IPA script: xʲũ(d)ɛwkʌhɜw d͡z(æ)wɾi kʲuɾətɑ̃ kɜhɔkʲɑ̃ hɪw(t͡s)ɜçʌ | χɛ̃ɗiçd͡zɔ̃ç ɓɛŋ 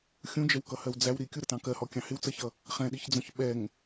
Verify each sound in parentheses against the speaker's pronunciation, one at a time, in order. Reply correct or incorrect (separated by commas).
incorrect, correct, correct